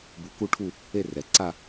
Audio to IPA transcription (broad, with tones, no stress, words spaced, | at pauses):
bu˧ku˥ ʈʰu˥˧ | e˥˧rɛ˩˧ǀa˥˧